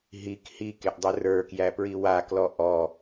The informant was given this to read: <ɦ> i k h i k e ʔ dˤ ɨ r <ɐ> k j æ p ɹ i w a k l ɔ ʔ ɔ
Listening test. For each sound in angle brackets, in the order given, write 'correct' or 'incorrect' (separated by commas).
correct, incorrect